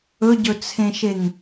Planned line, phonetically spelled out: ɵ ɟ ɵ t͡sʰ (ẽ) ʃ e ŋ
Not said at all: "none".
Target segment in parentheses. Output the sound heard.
ẽ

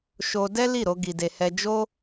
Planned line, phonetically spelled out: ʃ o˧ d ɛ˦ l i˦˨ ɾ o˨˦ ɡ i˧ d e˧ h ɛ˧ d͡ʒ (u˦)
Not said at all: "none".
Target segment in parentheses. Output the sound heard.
o˦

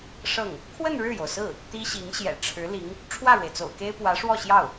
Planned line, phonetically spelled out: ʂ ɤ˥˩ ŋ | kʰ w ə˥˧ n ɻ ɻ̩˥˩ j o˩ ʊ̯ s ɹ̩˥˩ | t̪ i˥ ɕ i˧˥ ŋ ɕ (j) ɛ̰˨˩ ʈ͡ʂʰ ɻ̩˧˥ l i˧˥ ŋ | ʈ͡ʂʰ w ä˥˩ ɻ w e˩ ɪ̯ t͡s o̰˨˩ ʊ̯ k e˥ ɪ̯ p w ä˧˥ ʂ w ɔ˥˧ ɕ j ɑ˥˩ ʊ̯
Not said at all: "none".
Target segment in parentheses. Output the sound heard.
j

